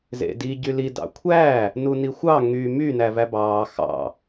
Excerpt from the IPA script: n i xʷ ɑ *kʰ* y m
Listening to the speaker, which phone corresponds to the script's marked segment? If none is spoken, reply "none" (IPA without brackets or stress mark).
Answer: ŋ